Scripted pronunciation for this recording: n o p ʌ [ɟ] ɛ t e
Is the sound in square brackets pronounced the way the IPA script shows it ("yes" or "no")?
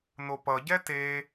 yes